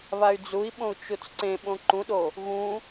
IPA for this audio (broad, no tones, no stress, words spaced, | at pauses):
βay̯d͡zui̯ɓõu̯ t͡ʃut͡sǀẽɓõ ǃũɗo | ɣũ